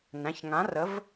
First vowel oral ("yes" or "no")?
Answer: no